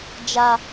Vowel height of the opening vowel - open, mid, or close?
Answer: open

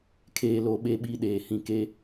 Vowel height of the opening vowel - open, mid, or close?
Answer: mid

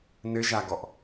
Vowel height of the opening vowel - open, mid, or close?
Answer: mid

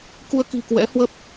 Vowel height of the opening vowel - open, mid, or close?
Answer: close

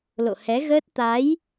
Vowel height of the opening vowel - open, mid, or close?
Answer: mid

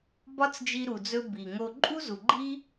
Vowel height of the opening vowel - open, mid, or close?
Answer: open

